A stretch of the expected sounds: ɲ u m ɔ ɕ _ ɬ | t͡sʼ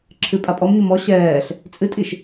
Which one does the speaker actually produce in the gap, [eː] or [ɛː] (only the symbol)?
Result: ɛː